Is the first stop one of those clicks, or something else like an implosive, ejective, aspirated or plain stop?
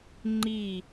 click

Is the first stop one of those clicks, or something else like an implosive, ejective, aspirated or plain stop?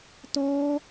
plain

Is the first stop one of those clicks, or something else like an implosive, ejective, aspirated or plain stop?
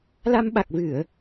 implosive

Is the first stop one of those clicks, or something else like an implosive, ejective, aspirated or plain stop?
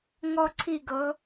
click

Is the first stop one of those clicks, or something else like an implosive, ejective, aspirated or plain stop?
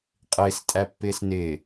ejective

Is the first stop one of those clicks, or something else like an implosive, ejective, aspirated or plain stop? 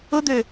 plain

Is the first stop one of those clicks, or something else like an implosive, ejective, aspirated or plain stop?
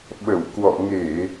implosive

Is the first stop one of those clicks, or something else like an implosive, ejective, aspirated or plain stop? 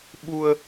implosive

